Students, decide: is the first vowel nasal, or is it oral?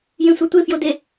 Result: nasal